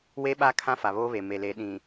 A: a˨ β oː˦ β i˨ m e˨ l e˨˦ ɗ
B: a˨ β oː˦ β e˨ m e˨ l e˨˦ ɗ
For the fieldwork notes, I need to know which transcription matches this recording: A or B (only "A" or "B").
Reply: B